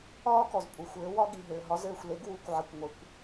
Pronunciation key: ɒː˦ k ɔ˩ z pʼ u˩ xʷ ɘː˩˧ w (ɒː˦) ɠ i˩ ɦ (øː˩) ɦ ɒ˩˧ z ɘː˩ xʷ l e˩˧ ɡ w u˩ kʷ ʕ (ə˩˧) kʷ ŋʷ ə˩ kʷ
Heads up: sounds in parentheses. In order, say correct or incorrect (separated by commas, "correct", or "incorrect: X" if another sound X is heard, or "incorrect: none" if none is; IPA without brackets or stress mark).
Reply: incorrect: ɒ˦, incorrect: ɘː˩, incorrect: ə˩